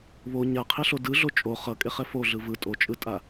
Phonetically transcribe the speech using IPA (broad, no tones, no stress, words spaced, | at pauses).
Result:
βo ɲaqʰeɬo dɯɮo t͡ʃʼo χʌkʼeχɛ foɮɯ vɯ tʼot͡ʃʼɯtʼa